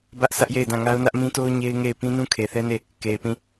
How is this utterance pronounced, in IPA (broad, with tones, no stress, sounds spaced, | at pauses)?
b ä˦ ʔ sʰ ä˦ ʔ j e˦˨ ɪ̯ d ã˦˨ ŋ a˦ ʊ̯ n ä˦ ʔ m ĩ˦ t o˦ ʊ̯ ɲ e˦ ɪ̯ ŋ e˦˨ ɪ̯ p ĩ˦ n ũ˦ kʰ e˨ θ ɛ˦ n e˦˨ | k e˨ ɪ̯ p ĩ˦˨